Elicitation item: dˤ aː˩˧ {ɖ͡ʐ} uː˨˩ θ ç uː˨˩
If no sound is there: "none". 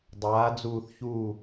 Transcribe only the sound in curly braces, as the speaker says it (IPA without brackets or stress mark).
d͡z